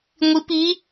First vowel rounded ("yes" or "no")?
no